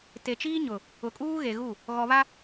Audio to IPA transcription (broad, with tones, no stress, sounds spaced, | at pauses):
t e˨ t͡ʃ iː˦ ɲ ʊ˨ | ʊ˨ kʼ uː˦ ɣ e˨ ɣ u˦˨ | ɣ ɔ˨ β a˦